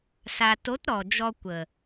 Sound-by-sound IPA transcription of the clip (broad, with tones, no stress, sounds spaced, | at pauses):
s a˨ t o˨˦ t ɾ ɔ˨ d͡ʒ ɔ˧ kʷ ə˨